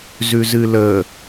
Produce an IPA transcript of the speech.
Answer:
zʉzɨlə

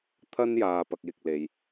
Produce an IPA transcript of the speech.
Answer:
t̪ʰɐ˥njaː˨ pɐ˧k̚jɪ˨k̚le˨j

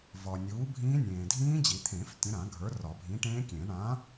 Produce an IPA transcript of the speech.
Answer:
vɒ˨ nʲuː˨˥bʱĩː˦˥nʲẽː˨ dʱĩː˦˥d͡ʑi˨˩˦t̪ʰẽ˨˩˦f tʲə̃˨˥ɾã˨˩˦ ɡʱə˞˨˥rɒ˨˩˦ bʱĩ˨˥ʈẽː˦˥kʲẽː˨˩˦ ɳã˨˥

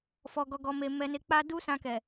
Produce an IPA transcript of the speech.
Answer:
fɔ˨ɡɔ˨ɡɔ˨me˨ mɛ˨ne˨k͡pa˧ du˦sã˧kɛ˨

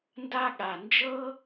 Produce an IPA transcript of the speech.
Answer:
nda˥ ɠa˧ nd͡ʒɤ˥

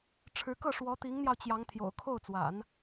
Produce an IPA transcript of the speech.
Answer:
ʈ͡ʂʰɻ̩˧˥ kɤ˥˩ʂwɔ˧˥t̪i˧˥ŋn̪jɑ˧ʊ̯ t͡ɕjɑ˧˥ŋt̪ʰjo̰˨˩ʊ̯ kʰo˥˩ʊ̯t͡swa̰˨˩˦n

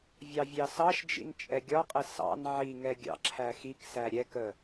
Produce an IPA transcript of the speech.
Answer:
vʲɑvʲɑsɑʃd͡ʒḭn t͡ʃʼɛɡʲɒqʼɪ sɑ̰n ʕiŋɛ ɡʲɑ̰ǁʰæxiksæ ɾʲɛkə

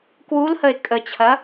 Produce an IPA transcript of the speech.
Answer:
kwulhəɪ̯ kʼət͡ɕʰɐ

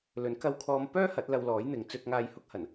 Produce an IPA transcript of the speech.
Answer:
lɵ˨˥nkɐ˧wkʰɔː˧m pœː˥ hɐ˨˥t̚lɐ˧wlɔː˨˥j n̪ɪ˨˧ŋ t͡sɵ˧t̚ ŋaː˧jhʊ˥k̚hɐ˨˩n

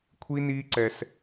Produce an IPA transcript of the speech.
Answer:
kʷʰi˦ni˦ ǀɛ˧s

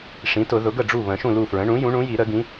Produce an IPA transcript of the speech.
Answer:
ʂĩ˩˥tʊ˨˩˦ ðʊ˩˥ɡə˥˩ɖ͡ʐu˥˩ βə̃˨˩˦ʃũ˥˩lu˥˩fɹə̃˩˥ ɳũ˩˥ jũ˩˥ɳũ˩˥ji˨˩˦ɾə˨˩˦ ɡĩ˩˥

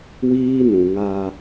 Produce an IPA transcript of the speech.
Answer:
wiː˦ nũ˨ŋa˦

